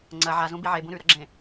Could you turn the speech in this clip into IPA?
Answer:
ŋ͡ǀ ɐ ʕ a z ũ b i ʕ e b ũ ɾ ʉ ɾ ɐ ɡ͡ǁ ẽ

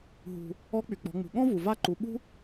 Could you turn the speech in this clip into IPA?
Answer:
ɦ ṳ˩ | ɔ˧˥ k͡p y˩ k͡p ɔ̤˩˧ ŋ͡m ṳ˩ ɠ ɔ̃˥ v u˩ v a˥ ǃ u˩˧ ɓ ṳ˥

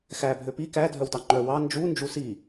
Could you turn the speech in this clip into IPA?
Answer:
x æ bʱ ø p i k æ dʱ œ w t ɑ ŋ͡ǃ œ w ɑ n d͡ʒ u n d͡ʒ u s i

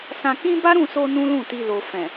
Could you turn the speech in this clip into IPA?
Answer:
s ã˧ k ĩ˦ b a˦ ɾ ũ˦˨ s o˧ n ũ˦ l ũ˦˨ t i˧ l o˨ f ɛ̃˨

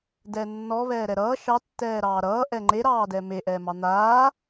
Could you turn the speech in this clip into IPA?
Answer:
d ɛː nː ɔ β ɛː ɾ ɛ ɾ ʌː ʃ ɑ tː ɛː ɾ ɑː ɾ ʌː ʔ ɛ ŋ͡ǃ e ɾ ɑː d ɛ m e ʔ ɛː m ɑ n̪ aː

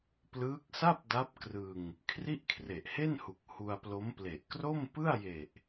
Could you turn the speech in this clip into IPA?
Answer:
p l ɯː˦˥ k̚ s a˥˩ p̚ d a˦˥ p̚ k r ɯ˧ ŋ | kʰ r i˥˩ ʔ kʰ r e˨˩ ʔ h e˥˩ n h u˨˩ k̚ h u˧ a̯ p l o˦˥ m p l e˨˩ ʔ k r o˥˩ m p ɯ˥˩ a̯ j e˨˩ ʔ

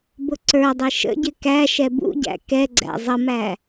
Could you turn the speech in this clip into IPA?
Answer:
b ʊ ǀ ə˞ dˤ i ʃ ə̰ ɟ ɪ k æ ʃ ɛ b ṵ ɟ æ̰ k ɛ ɡ͡ǀ æ̰ zˤ ə m æ

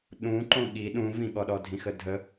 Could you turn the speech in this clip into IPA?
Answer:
ɗ ũ ǃ õ ɠ i ɗ ũ v ĩ ɠ ɔ ɗ ɔ dʱ ĩ x ə dʱ ə

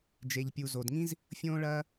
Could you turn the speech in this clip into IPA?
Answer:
d͡ʒ e˩ ʎ pʲ u˩ z o˩ d ŋ ĩ˥ z | fʲ õː˥ ɭ ɐː˥

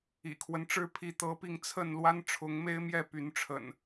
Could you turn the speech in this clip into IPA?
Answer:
ḭ˨˩ kʰ w ə˦ n ʈ͡ʂ ɻ̩˦ pʰ i˨˦ t̪ ɤ˨˦ p i˧ ŋ t͡sʰ ə˥˨ n l w a˦ n ʈ͡ʂʰ ʊ˨˦ ŋ m e˦ ɪ̯ m j ɛ˥˨ p y˨˦ n ʈ͡ʂʰ ə̰˨˩ n

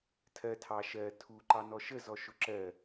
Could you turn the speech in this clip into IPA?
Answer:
tʰ ɜ tʰ ɑ ʃ ɜ tʰ u ǃ ɑ n ɔ ʃ ə z ɔ ʃ ʊ ǁ ɜ

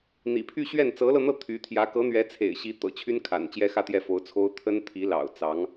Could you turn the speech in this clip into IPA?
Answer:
n̪ ḭ˨˩ pʰ y˥˧ ɕ ɥ ɛ˥˩ n t͡s ɤ˧˥ l ɤ˧ n̪ ɤ˥˩ t̪ʰ y˧˥ t̪ʰ j ä˧˥ k ɤ˧˥ n̪ ɥ ɛ˧˥ t͡sʰ ḛ˨˩ ɪ̯ ɕ i˧˥ t̪ ɤ̰˨˩ t͡ɕʰ y˥ n kʰ a̰˨˩ n t͡ɕ j ɛ˥ x ä˥˧ t̪ j ɛ˥˩ f o˧˥ ʊ̯ t͡sʰ o˥ ʊ̯ t̪ʰ ə˥ n t̪ʰ i˧˥ l ɑ̰˨˩ ʊ̯ t͡s ɑ˧˥ ŋ

